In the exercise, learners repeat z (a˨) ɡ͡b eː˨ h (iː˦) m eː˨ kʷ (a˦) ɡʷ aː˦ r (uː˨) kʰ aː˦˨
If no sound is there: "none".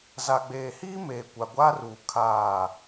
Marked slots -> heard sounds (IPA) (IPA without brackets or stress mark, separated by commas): a˨, iː˦, a˨, uː˨